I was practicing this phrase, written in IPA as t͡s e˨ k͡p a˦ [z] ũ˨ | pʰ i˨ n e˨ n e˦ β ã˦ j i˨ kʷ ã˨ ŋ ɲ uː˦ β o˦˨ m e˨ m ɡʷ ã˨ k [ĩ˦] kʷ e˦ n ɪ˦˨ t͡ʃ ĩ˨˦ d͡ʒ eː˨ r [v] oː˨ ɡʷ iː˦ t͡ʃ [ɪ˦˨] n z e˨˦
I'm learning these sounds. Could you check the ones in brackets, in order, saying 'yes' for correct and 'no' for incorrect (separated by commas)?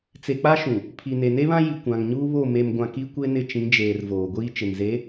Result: no, no, yes, no